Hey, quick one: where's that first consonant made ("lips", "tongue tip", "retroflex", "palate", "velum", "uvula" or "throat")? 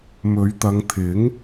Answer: lips